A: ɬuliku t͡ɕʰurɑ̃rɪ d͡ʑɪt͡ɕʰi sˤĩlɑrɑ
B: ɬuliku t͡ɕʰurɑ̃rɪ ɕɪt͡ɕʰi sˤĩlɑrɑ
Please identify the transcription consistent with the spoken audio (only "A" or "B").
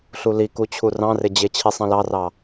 A